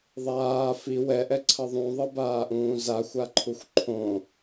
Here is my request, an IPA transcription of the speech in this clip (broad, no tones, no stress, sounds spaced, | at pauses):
ðˤ aː f i w ɛ ʔ ɛ ǀʰ ʌ ðˤ ũ ðˤ ɯ b aː ʔ ũː z a xʷ a ǃʰ u xʷ ǃʰ õ